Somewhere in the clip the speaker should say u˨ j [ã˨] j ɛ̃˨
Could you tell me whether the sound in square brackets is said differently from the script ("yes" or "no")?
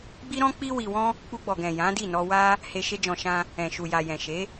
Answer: yes